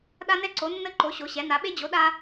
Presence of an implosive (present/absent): present